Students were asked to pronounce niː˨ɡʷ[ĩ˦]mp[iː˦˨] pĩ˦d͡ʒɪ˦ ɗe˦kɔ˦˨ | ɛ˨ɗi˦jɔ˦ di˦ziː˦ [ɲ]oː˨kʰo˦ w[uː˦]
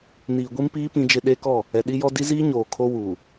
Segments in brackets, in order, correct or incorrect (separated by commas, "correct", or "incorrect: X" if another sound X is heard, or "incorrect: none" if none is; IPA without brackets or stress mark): incorrect: i˦, incorrect: iː˦, correct, incorrect: uː˨